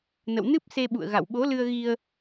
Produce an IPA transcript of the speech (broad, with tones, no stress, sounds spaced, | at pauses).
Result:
n ə̰˧˨ w n ɨ˦˥ p̚ s e˧ ɓ ṵ˧˨ ə̯ ɣ a̰˧˨ w ɓ o˨˦ l ɨ˧ ə̯ ɣ i˧ ə̯